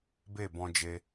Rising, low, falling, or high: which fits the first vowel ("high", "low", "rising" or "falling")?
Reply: falling